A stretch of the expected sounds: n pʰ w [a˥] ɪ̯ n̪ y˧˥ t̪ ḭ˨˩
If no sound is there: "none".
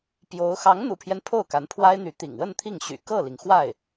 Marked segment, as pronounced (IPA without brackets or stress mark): a˥